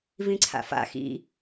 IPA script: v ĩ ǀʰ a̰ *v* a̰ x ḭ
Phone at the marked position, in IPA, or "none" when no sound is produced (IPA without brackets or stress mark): f